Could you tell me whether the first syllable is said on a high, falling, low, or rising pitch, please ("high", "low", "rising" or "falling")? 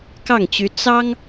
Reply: falling